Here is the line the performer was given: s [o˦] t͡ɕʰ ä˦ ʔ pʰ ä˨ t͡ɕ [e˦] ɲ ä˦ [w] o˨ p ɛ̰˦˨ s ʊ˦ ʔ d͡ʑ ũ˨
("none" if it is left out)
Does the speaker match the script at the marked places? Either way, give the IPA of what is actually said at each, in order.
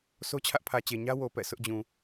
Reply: o˦, e˨, w

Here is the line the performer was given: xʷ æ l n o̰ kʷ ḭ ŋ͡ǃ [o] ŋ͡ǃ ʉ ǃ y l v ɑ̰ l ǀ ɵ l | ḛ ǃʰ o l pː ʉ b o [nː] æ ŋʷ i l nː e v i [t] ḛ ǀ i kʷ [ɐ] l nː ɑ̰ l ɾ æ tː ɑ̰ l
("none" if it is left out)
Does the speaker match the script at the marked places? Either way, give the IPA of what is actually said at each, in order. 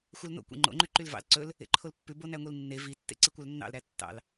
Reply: o̰, n, tː, ɑ

